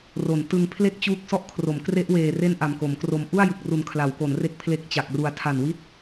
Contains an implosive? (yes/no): no